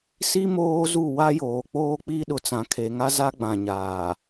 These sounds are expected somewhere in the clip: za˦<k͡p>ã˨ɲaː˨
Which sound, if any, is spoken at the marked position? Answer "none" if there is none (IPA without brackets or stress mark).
ɡ͡b